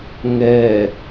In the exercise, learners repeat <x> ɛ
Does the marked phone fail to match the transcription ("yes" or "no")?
yes